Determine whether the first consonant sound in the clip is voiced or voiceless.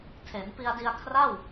voiceless